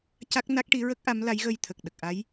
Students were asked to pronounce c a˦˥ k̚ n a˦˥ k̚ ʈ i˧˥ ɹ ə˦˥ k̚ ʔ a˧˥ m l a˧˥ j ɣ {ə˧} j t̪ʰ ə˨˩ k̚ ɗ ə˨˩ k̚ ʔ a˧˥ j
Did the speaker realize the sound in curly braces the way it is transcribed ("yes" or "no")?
yes